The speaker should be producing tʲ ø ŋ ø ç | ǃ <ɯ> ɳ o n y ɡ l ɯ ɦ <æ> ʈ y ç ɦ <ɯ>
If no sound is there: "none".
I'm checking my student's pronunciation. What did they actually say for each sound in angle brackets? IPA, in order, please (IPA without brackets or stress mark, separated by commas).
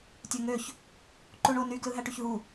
u, æ, u